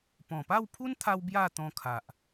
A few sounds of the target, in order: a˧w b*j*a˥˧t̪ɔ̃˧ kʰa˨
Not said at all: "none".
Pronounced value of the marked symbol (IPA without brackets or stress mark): j